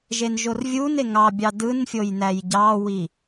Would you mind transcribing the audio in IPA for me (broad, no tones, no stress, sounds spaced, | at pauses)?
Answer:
ʒ e n ʒ o r vʲ u n e ŋ ɑ bʲ ɑ d ɯ n fʲ o j n æ j ɟ ɑ w i